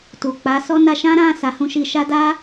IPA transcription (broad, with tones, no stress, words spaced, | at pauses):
tu˨k͡pa˨˦ sɔ˦ na˧ʃã˦ɾã˦˨ sa˧hũ˧ʃi˧ʃa˦ da˦